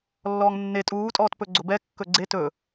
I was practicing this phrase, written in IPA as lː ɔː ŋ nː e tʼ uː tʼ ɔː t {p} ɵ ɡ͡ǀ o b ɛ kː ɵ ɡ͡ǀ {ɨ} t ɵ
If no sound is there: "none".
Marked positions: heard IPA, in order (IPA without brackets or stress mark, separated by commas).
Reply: p, e